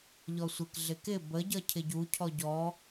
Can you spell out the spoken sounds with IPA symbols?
ʎ ɔ sʷ ɪ k ɮ ɪ k ɪ b ə ɟ ʌ cʰ ɪ ɟ u cʰ ɔ ɟ ɔ

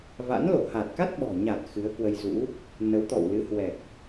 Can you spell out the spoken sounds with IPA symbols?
v a̰˧˥ n l o˧˩ h a˨˩ t̚ k a˦˥ t̚ ɓ ɔ̤˨˩ ɲ a˨˩ t̚ x ɨ˨˦ ə̯ k w ə˧ j z ṵ˧˥ | n ə˨˦ w t̪ ɔ̰˧˨ w l ɨ˨˦ h w ɛ˨˩ k̚

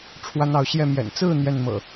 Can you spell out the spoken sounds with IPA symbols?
ʈ͡ʂʰ w a˦ n ɑ˨˦ ʊ̯ ɕ j ɛ˥˨ m j ɛ̰˨˩ n t͡s ɹ̩˥˨ n̪ j ɛ˥˨ n m ɤ̰˨˩

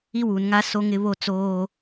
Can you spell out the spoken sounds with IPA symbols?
i˦ w u˨ n ŋ a˦ s o˦ ŋ ɪ˦ β o˦ t͡s oː˦

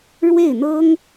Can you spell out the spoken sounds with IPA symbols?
ɻ w e˥˩ ɪ̯ n̪ ɤ˥ ŋ

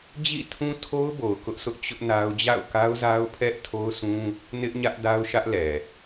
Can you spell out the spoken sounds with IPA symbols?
d͡ʑ ḭ˦˨ tʰ ũ˦ tʰ o˦ ʊ̯ b o˨ ʊ̯ k ʊ˦ ʔ s ʊ˦ ʔ t͡ɕ ʊ˦ ʔ n a˦ ʊ̯ d͡ʑ a̰˦˨ ʊ̯ k a˦ ʊ̯ z a˦ ʊ̯ pʰ ɛ˦ ʔ tʰ o˦ ʊ̯ sʰ ũ˦ | n ɪ˦ ʔ ɲ ä˦ ʔ d a˦ ʊ̯ ʃ ä˦ ʔ l ɛ˨

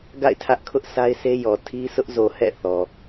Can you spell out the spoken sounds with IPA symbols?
ɡ a̰˦˨ ɪ̯ tʰ ä˦ ʔ kʰ ʊ˦ ʔ s a˦ ɪ̯ s e˦ j ɔ˨ tʰ i˦ sʰ ʊ˦ ʔ z o˨ h ɛ̰˦˨ θ ɔ˨

